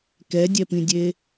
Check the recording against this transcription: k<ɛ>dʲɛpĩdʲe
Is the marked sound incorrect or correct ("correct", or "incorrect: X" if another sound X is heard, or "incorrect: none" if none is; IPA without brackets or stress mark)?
correct